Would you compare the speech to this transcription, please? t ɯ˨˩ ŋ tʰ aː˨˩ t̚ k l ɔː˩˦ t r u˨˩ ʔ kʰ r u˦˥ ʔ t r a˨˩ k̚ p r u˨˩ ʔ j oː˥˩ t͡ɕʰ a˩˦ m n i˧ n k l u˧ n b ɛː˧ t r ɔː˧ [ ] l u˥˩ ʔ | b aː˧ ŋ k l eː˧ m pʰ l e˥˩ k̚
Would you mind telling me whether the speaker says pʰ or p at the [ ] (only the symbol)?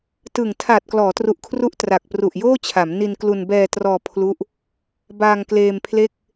pʰ